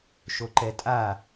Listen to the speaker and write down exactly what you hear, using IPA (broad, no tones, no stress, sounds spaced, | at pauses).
ʃ o ǃ ɛ tʼ a